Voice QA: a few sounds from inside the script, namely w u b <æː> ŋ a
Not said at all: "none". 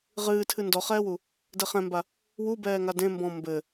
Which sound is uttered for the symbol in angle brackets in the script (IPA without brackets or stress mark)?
ɛː